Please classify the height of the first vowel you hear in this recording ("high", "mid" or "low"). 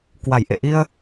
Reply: low